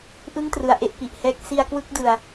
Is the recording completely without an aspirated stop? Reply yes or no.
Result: yes